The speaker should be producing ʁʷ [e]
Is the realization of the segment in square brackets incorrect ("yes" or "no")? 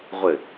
yes